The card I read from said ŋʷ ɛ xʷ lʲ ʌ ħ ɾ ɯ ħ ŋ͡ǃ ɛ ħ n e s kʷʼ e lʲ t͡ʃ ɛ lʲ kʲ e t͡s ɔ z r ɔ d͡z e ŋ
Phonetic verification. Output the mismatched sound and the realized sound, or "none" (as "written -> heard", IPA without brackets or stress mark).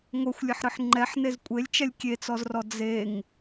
s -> z